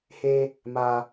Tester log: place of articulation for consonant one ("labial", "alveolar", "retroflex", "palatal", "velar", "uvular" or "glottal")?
glottal